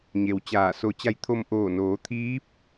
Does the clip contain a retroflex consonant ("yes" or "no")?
no